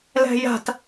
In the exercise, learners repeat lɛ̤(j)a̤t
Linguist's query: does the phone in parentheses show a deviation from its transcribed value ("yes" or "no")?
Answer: no